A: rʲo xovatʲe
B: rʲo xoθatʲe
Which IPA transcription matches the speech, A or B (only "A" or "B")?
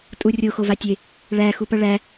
A